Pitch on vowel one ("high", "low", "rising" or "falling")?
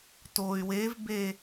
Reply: low